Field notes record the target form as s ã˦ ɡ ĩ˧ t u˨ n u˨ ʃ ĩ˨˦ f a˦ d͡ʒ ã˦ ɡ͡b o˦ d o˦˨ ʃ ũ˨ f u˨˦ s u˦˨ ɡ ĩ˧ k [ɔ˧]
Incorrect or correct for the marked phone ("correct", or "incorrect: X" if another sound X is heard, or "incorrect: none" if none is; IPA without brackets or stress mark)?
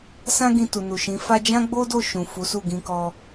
correct